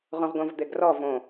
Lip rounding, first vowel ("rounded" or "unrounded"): rounded